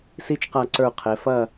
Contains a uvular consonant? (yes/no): yes